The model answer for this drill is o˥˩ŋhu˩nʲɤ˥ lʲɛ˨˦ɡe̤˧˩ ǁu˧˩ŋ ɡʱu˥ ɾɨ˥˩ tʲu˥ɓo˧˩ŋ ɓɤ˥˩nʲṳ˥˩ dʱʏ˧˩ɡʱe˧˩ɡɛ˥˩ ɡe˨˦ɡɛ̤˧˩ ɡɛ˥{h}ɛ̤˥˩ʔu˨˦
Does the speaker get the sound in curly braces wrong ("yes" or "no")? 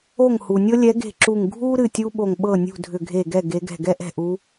yes